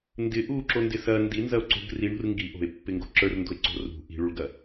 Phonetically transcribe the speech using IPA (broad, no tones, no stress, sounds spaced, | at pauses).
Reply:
n d ɪ ʔ u ǁ o n d ɪ s ɐ n d i n z ɐ o̯ ǀ o̤ ɡ r i ɳ ṳ r ŋ ɡ i ʔ o̤ e̯ pː ɪ ŋ ɡ o̤ ǁ ə˞ r n d o̤ e̯ ǀ o̤ r ṳ ʔ i̤ ɭ u ɭ ɡ ɐ